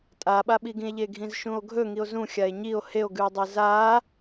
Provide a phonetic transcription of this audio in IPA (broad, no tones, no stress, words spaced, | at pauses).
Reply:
tʼaɓaɓiɡĩe̯ ʎeɡʱĩzʃũo̯ɡʱɵ ŋio̯zũ xʲae̯ɲio̯ heo̯ɡʉe̯dˤe za